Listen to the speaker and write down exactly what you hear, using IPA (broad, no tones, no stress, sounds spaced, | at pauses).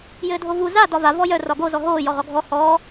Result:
j ɘː dʱ o v u z a d ɒ v a v ɔ j œ r ɒ ɡ o z ɔ ɦ oː j ɔ ʁ ɔ ɡʱ ɔ h ɔː